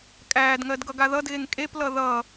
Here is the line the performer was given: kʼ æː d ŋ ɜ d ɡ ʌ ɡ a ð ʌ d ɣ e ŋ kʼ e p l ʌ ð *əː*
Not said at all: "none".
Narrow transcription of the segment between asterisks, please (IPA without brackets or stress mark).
ʌː